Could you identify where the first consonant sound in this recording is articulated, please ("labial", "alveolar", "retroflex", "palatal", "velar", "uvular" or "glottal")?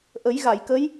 glottal